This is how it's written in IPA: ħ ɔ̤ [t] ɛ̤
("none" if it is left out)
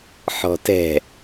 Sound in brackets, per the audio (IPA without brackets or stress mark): t